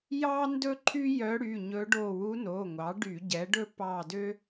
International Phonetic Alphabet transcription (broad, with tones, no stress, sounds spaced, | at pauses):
j ɑ˥ n d ɵ˥ ǃʰ y˥ j œ˧˥ ɽ y˩˧˩ ɲ ɵ˧˥ ɖ o˦˨ w u˧˥ n o˩˧˩ ŋʷ ɑ˩˥ ɖ y˧˩˧ ɟ ɛ˩˥ ɖ ɵ˥ p ɑ˦˨ d ø˥